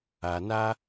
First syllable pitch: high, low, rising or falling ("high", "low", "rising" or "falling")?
low